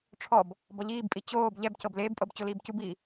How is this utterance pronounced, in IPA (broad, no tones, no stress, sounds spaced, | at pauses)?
ʈ͡ʂʰ ɔ b | b ɔ ʎ iː b pʼ i t͡ɕ oː b ʎ ɛ b c ɤ b l eː b pʼ ɤ b t͡ɕ o l iː b c u b iː